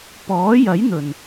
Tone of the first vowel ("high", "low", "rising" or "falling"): rising